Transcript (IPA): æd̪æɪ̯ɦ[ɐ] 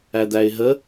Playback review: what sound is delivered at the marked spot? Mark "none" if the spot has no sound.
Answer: ə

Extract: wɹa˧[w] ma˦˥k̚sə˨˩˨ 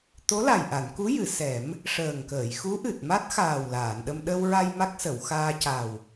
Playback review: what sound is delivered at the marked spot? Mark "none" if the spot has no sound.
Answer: j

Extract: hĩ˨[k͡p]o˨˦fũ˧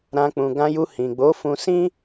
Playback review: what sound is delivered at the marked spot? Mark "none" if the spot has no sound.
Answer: ɡ͡b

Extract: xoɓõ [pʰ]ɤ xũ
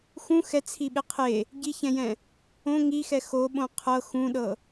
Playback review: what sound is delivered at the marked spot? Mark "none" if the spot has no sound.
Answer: qʰ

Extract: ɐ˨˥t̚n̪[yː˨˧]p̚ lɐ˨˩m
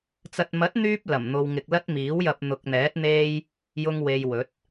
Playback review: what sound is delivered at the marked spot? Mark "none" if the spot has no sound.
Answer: yː˧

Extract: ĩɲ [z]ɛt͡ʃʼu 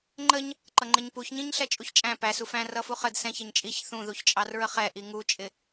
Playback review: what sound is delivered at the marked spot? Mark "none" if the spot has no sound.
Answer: ɬ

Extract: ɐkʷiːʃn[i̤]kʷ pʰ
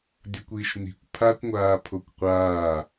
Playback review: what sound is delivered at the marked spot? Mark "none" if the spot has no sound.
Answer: i̤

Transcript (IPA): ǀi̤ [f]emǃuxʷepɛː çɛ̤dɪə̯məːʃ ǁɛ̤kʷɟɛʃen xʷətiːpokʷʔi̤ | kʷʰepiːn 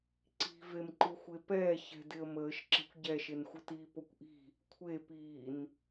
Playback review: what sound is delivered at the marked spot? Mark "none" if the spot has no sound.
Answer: v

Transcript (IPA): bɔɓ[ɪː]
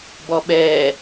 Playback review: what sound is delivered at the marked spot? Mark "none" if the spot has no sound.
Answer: ɛː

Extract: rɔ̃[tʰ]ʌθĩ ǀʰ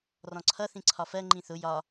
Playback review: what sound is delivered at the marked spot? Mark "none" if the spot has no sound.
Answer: ǀʰ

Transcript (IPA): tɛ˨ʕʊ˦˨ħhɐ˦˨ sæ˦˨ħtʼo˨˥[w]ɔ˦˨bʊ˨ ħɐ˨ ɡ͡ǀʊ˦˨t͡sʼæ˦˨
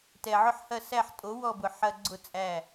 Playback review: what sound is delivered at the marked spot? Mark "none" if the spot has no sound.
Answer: w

